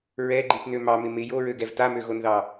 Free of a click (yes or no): no